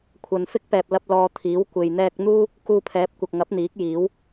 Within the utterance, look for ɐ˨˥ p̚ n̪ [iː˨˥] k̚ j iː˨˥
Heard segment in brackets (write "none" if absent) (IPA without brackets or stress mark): iː˨˥